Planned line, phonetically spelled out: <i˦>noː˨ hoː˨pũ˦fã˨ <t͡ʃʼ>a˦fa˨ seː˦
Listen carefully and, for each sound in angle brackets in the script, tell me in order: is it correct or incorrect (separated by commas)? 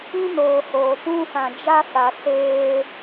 incorrect, incorrect